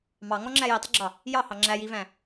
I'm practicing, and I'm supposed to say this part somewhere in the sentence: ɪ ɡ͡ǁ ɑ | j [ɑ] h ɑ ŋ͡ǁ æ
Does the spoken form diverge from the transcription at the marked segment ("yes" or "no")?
no